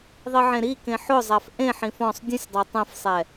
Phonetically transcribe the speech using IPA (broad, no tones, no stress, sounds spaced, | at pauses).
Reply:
ðˤ i ʕ ẽ ɾ i k ẽ ħ ʊ zˤ a f ʔ ẽ ħ ĩ f ɔ̃ sˤ dʲ ũ sʲ dˤ ɛ tˤ ẽ f sˤ ɛ